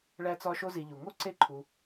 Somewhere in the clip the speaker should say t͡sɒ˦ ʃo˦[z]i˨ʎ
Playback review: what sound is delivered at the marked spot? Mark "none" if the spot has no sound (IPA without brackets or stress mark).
z